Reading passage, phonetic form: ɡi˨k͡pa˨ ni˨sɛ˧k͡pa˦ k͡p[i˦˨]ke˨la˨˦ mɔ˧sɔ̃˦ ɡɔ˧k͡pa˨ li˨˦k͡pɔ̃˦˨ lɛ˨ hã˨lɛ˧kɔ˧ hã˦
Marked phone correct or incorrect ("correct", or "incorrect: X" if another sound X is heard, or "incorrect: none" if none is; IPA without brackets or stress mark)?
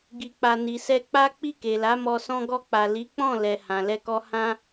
correct